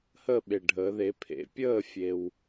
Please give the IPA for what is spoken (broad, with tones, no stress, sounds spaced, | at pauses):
h ə˥˨ ɓ e˩ ɖʱ əː˩˧ ð e˩˥ pʰ ḛ˩˥ pʲ əː˥˨ fʲ e˩ w